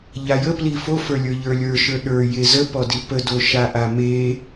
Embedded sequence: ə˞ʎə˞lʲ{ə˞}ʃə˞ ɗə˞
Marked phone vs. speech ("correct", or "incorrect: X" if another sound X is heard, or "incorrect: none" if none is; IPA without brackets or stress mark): correct